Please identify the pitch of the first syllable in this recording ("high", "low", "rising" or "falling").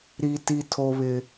high